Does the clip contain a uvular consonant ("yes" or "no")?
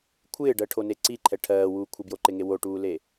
no